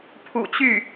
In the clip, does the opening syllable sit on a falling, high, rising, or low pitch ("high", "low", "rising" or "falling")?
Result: low